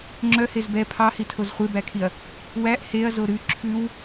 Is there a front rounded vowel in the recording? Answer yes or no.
yes